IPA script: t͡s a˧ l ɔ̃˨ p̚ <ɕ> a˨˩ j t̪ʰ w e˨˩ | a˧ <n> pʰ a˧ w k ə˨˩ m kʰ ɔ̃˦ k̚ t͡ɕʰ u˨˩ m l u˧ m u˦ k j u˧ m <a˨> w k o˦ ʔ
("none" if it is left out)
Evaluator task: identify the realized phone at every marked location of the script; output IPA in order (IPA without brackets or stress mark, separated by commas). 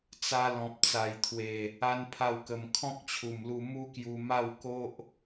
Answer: t͡s, n, a˥˧